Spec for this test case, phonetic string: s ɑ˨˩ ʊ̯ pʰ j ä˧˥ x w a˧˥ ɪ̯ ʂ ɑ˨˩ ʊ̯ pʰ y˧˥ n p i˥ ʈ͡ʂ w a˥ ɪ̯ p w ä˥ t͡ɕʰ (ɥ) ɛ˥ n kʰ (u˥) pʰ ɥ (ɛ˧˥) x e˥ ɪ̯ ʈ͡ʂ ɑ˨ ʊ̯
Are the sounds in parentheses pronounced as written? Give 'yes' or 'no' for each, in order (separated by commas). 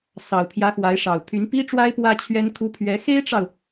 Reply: yes, yes, yes